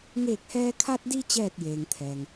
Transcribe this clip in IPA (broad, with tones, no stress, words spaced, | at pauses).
ŋeː˧˩k̚hɛː˧ kʰa˧t̚di˧ t͡ɕɛː˥˨t̚jeː˩ŋt̪ʰɛː˩ŋ